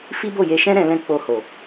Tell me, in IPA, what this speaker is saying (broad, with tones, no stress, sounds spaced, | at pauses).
f i˦ b o˦˨ j e˧ ʃ ɛ̃˦ ɾ ɛ̃˧ l ɛ̃˧ k͡p o˧ h o˨